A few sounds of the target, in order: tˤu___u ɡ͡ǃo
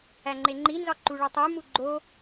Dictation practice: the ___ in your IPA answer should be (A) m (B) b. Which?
A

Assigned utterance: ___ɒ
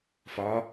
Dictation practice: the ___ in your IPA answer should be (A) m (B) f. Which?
B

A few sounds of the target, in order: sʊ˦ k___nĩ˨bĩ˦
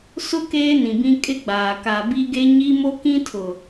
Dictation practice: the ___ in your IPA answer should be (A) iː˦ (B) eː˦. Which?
B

